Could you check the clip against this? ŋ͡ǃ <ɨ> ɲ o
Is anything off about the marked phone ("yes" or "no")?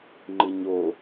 no